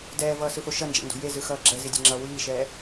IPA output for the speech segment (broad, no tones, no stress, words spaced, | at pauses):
dɛːvʌːsɯfo ʃʌnd͡ʒɛ̰ndo̤ jezɯxʌː ɡ͡ǁɛzidʲe̤ŋ͡ǁʌː wiːʃɛː